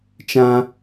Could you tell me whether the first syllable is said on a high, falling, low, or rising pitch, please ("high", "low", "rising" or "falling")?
high